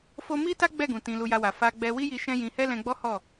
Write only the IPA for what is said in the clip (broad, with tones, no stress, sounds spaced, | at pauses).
f o˦ m i˦ t a˦ ɡ͡b ɛ˦˨ ɡ ũ˨ t ĩ˧ l u˧ j a˧ w a˨ f a˧ ɡ͡b ɛ˧ w i˦ j i˧ ʃ ɛ̃˦ j ĩ˧ h ɛ˦ l ɛ̃˧ ɡ͡b ɔ˦ h ɔ˦˨